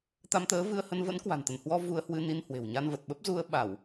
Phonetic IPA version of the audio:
t̪ a˧ m t̪ əː˨˦ v ɨ˧ ə̯ h ə˧ n v ə̰˧˥ n k w a̤˨˩ n t̪ ə˧˩ n h w ɔ˧ v u˧ ə̯ h w ɨ˧ n i˧ n h w e̤˨˩ w ɲ a˧ n v ə˨˩ t̚ ɓ ə˦˥ p̚ z u˧ ə̯ ɓ a˧˩˨ w

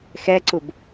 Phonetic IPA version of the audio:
x ɛ ǀ u b

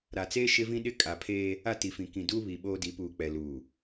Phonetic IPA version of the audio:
ɾ a˨ t͡s eː˦ ʃ ɪ˦ v ĩ˦ ɗ ɪ˦ kʼ a˨ pʰ eː˦ | a˦˨ t i˨ f ĩ˨ k ĩ˨ d uː˦ β i˨ ɓ oː˦ d i˨˦ p uː˨ k͡p ɛ˨ l uː˨

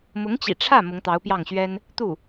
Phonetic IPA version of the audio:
m ʊ˧˥ ŋ t͡ɕ ḭ˨˩ ʈ͡ʂʰ ä˥˩ m ʊ˧˥ ŋ t̪ ɑ˧˥ ʊ̯ p j ɑ˥˩ ŋ ɕ ɥ ɛ˥ n | t̪ u˥˩

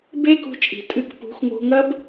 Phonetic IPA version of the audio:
b eː˦ k ṳ˧ t͡ʃʼ i̤˨ tʼ ɨ˧ k p ṳ˨˦ x ŋ o̤˧ ŋ ɐ˦ b

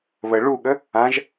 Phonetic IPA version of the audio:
β ə ɭ u ɠ ə | ã ʒ

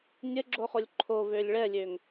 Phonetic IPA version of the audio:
nʲ ə ɡ͡ǁ o χ o lʲ ǃʰ o v ø lʲ ɭ ɛ lʲ ø ŋ

